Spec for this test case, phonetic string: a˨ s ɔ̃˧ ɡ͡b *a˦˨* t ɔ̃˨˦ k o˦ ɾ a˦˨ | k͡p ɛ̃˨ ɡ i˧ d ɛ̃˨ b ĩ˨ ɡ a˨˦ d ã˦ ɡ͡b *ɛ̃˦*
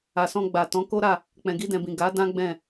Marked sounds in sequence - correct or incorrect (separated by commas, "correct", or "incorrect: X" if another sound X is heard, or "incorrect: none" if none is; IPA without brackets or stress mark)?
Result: incorrect: a˨, incorrect: ɛ̃˦˨